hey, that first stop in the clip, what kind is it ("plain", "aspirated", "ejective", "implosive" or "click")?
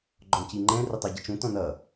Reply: click